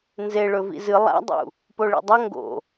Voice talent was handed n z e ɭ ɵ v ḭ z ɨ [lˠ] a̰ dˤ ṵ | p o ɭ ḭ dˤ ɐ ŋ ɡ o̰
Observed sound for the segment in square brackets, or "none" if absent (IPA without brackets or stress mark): lˠ